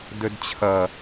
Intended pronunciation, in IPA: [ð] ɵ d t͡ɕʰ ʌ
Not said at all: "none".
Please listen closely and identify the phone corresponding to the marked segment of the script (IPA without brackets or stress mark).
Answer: d